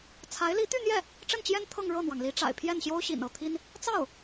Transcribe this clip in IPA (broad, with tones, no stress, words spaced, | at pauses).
t͡sʰa˧˥ɪ̯ li˧˥t̪y˥˧n̪jɛ˥˩ | ʈ͡ʂə˥˩nt͡ɕjɛ˥n t̪ʰɤ˥˧ŋ ɻɤ˥˩n̪wɑ˩ŋli˧˥ʈ͡ʂa̰˨˩ɪ̯ pʰjɛ˥˩nɕjo˥ʊ̯ɕḭ˨˩n ɤ˥˩t̪ʰi˥n | t͡sɑ˥˩ʊ̯